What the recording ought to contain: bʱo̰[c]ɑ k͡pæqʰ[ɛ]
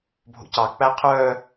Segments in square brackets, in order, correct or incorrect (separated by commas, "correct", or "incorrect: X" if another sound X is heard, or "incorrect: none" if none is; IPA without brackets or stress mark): correct, incorrect: œ